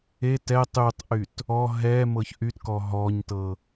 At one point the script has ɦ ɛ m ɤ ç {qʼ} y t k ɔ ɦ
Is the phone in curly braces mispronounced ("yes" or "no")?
yes